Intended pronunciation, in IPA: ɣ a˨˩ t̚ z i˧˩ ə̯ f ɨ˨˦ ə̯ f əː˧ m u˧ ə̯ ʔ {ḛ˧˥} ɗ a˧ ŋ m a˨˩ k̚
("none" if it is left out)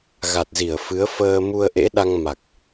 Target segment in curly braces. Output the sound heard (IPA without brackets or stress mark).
ḛ˧˥